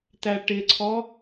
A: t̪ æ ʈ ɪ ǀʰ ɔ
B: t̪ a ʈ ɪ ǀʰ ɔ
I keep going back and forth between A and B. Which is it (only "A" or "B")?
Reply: A